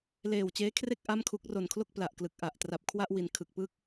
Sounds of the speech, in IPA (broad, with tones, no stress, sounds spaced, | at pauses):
l eː˨˩ w t͡ɕ eː˦˥ kʰ r e˥˩ k̚ ʔ a˥˩ m kʰ u˦˥ k̚ r o˨˩ n kʰ l o˥˩ k̚ p l a˨˩ ʔ k l ɯ˨˩ k̚ ʔ a˨˩ ʔ t r a˨˩ p̚ kʰ w a˥˩ ʔ w i˨˩ n kʰ ɯ˨˩ k̚ p ɯ˥˩ k̚